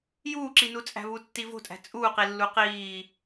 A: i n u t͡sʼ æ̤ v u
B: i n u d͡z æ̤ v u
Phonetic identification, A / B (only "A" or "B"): A